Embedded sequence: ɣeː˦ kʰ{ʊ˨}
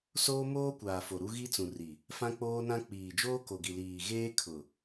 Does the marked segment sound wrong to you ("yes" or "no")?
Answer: no